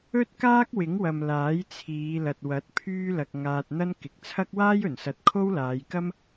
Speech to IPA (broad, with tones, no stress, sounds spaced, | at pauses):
ɵ˥ t̚ k aː˥ k̚ w ɪ˨˥ ŋ w ɐ˨ m l aː˨˥ j t͡sʰ iː˨˧ l ɐ˨ t̚ w ɐ˨˥ t̚ pʰ yː˥ l ɐ˧ k̚ ŋ aː˧ t̚ n̪ ɐ˥ n k ɪ˨ k̚ t͡sʰ ɐ˥ k̚ w aː˥ j ɵ˨˩ n s ɐ˨˥ t̚ kʰ o˥ w l aː˨˧ j k ɐ˥ m